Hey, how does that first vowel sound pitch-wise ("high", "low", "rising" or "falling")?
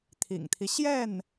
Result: low